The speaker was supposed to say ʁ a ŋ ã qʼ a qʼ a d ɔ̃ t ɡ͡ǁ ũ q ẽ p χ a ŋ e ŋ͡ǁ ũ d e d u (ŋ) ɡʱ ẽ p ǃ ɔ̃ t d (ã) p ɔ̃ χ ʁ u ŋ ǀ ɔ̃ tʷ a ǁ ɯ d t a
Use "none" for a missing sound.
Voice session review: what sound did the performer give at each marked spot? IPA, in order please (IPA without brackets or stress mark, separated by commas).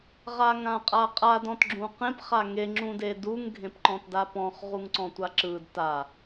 ŋ, a